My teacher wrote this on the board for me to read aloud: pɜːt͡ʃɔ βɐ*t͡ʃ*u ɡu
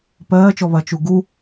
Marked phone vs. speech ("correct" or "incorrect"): correct